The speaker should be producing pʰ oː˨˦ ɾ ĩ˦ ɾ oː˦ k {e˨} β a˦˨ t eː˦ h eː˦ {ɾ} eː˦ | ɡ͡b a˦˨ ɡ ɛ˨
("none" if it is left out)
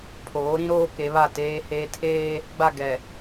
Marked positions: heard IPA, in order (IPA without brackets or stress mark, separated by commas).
e˨˦, tʰ